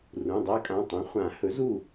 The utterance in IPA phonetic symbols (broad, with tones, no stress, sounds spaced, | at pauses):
r ũ˩˧˩ dˤ a˦˥ kʼ ã˩˧˩ tˤ ũ˨˥ χʷ ã˨˩˦ h ɵ˨˥ z u˥˨